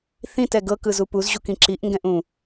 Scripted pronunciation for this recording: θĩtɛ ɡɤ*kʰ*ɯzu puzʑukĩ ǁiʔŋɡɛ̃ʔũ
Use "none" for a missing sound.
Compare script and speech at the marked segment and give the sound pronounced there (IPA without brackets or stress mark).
k